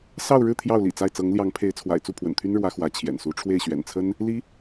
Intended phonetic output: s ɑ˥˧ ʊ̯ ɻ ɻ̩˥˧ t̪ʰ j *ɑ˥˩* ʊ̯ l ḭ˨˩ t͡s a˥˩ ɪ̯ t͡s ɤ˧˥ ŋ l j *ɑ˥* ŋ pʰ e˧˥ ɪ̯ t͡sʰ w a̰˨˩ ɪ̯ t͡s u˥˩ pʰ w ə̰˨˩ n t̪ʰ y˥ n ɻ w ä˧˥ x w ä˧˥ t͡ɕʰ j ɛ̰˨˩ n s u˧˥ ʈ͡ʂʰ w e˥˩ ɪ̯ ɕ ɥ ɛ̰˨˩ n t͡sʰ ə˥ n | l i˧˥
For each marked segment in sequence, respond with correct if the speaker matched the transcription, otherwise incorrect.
correct, incorrect

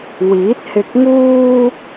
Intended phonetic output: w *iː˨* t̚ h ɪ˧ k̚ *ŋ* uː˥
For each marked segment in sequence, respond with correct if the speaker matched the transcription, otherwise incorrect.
incorrect, correct

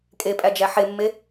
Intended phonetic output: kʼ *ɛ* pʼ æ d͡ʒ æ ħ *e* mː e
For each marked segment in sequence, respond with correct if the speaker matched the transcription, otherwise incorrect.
incorrect, correct

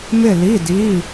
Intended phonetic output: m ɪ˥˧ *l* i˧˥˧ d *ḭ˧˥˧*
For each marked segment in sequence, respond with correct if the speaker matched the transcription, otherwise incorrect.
correct, incorrect

